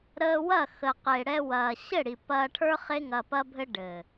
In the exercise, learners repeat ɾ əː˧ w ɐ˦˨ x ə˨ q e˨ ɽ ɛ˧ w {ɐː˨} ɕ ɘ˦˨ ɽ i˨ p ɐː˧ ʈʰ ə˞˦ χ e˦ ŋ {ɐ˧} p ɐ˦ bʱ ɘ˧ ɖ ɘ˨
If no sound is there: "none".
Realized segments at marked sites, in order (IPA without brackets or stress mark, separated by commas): ɐː˨, ɐ˧